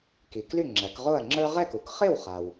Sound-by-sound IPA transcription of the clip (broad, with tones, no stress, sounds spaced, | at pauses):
k i˩ k l y˥˩ ŋ͡ǁ æ˩˥ k ʁ o˥˩ ɐ̯ ŋ͡ǁ ə˞˥ ʁ ɛ˥˩ k u˩ k χ ɪ˥˩ w χ a˩ w